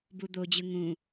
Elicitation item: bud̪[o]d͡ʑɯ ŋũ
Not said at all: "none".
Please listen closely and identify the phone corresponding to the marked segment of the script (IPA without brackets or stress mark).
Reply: o